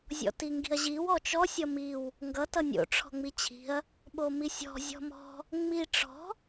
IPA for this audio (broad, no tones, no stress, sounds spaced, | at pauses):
zʲ ɔ̰ t i ŋ ɡ i̤ ɐ̯ ʑ i w ɔ t͡ʃ ɔ sʲ ʌ m i w | ŋ ɡ ʌ t ʌ nʲ o̰ ʈ͡ʂʰ ɔ̤ ŋ͡m i t͡ɕʰ i̤ ɐ̯ | ɓ o m i sʲ ɔ̤ zʲ ɔ̤ m ɔ̤ | ŋ͡m i ʈ͡ʂ ɔ̤